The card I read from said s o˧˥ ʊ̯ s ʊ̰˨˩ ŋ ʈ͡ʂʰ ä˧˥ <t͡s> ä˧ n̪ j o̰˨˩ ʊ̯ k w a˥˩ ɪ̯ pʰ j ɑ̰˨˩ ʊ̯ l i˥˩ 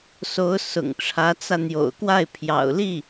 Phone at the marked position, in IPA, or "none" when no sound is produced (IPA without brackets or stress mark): t͡s